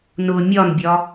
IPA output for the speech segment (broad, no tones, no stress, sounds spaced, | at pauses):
n ʊ mʲ ɒ n bʲ ɒ